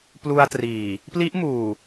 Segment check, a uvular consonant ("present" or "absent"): absent